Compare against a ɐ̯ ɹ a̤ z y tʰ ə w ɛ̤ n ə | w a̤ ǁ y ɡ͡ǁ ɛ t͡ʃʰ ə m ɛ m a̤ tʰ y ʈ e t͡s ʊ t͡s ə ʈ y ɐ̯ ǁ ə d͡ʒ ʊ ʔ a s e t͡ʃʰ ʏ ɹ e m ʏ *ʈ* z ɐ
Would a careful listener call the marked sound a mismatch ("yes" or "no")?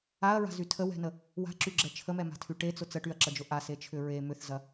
yes